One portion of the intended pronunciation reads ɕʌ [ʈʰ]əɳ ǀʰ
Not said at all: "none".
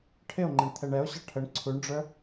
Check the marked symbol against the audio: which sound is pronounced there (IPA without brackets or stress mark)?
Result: ʈʰ